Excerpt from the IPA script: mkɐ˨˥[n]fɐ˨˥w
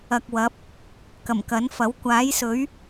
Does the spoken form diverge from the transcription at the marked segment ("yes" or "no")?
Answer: no